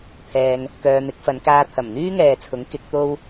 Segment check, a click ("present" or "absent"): absent